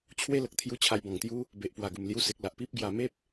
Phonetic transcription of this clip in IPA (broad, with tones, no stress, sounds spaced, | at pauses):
t͡ɕʰ w e˦ l ə˨ k̚ t̪ʰ j u˧ t͡ɕʰ a˧ j b ɔ̃˨˩ ŋ t̪ j u˦ | b e˨ ʔ p w a˨˩ ɡ u˨˩ m l j u˧ s e˨ k̚ l a˨ ʔ p i˦ p̚ ɡ j a˧ m e˦ p̚